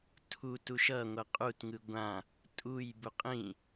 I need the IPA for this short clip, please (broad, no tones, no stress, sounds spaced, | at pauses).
tʰ u t u ʃ ʌ ŋʷ ʌ qʼ u t ŋ ɯ ɡʷ ã | tʼ u j b u qʼ ĩ